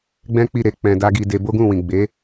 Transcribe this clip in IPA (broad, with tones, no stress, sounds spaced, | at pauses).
ɡ͡b ɛ̃˦ k͡p i˦˨ ɾ e˧ k͡p ɛ̃˧ d a˦ ɡ i˧ d e˧ b o˦ ɡ ũ˦˨ w ĩ˨ ɡ͡b e˨˦